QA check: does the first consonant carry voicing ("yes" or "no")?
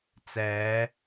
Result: no